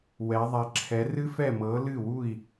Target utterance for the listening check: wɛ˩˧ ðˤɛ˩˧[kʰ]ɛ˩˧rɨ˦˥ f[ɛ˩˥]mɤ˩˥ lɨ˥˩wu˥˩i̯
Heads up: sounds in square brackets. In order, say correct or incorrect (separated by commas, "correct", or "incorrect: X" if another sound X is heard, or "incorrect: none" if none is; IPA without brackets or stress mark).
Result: incorrect: ǁʰ, incorrect: ɛ˥˩